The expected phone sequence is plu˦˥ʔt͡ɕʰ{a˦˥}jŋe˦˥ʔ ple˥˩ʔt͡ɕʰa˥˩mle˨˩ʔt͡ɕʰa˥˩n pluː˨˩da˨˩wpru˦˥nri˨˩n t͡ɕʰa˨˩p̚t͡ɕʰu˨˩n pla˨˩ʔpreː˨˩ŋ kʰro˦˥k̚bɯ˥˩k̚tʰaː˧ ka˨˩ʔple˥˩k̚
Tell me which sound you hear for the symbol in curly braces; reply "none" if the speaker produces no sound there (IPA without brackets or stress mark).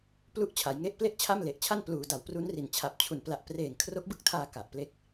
a˩˦